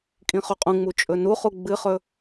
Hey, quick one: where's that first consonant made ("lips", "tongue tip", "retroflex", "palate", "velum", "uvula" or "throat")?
velum